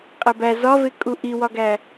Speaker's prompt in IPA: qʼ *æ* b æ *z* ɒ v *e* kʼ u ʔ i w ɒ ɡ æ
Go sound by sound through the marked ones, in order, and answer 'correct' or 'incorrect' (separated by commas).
correct, correct, correct